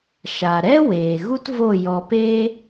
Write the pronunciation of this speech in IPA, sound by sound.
ʃa˨ɾɛ˦ weː˨ɣu˦tvo˦˨ jɔ˧peː˦

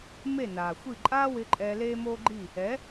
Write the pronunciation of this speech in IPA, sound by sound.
me˦˨naː˨xʷi˦˨ ǃʼaː˦wɪ˧ ǃʼɛː˧leː˦moː˦ɡ͡ǃi˦˨ | ɛ˨˦

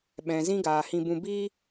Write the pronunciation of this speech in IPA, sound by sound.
ɓɛ̃˨ zĩ˦ɡaː˨hĩ˧bũ˧ biː˦

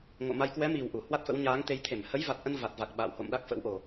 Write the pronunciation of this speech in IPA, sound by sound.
ŋo̰˧˨ma˧j kwɛ˨˦mi˨˩w ʔu˧˩ hwa˦˥t̚fə̰˧˥w ɲaː˨˦ŋt̪e˧jt̪ʰe˧˩m hə˨˦jva˨˩t̚ʔə˧n va˨˩t̚va˨˩k̚ ɓa̰ː˧˨who̰˧˨mɗa˦˥k̚ fə̰˧˥wʔo˨˩

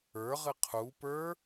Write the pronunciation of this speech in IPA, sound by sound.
ə˞ʁɨ qʰu pə˞

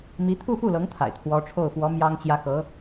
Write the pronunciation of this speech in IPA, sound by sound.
mi˧˥t̪ʰu˥˧fu˥˩lɤ˧˥ŋ t̪ʰa̰˨˩ɪ̯ t̪ʰwɔ˧˥ʈ͡ʂʰo˥˩ʊ̯fwɔ˧˥ mjɑ˥ŋt͡ɕjä˥ xɤ˧˥

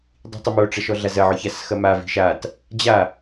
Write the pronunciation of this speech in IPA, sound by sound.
dˤi̤tˤɪmoʈ͡ʂɐ ʃɔɮazɐʕɔ çasxɐmavi̤ ʃat | d͡ʑa

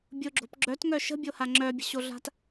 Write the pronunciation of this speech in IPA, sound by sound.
bʲʊɡ͡ǁo̤p ɡ͡ǁœtŋœ ʃə̤bʲoha ŋ͡ǁœbʲə̤ɕoɮa̤t

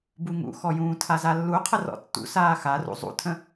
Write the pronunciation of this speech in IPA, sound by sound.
buŋṵxɔjũː tʰazalːuqʰər ɔ̰tːṵsaː xarṵ zˤṵtʰə̃

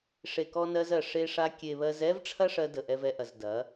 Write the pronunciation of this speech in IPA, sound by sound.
ʂe˨kɔ˧nɜ˧zɜ˨ ʂe˧ʂa˧ kʲe˨βɜ˧z ɛ˦vʈ͡ʂʰɐ˦ʂɜ˧ də˨ʔɛ˧vɛ˧ʔɐ˨z dɐ˨˦

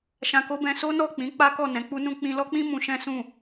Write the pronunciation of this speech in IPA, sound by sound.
ʃã˧ko˦bɛ̃˧ so˦nɔ˦˨ k͡pĩ˨˦ k͡pa˦kɔ˦˨ nɛ̃˨˦k͡pu˦nũ˦ k͡pĩ˧lɔ˦k͡pĩ˦ mũ˧ʃɛ̃˦sũ˦˨

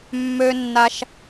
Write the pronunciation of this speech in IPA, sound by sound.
mːø˩nːa˩ʃ

